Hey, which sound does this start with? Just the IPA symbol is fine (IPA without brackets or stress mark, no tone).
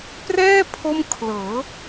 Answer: p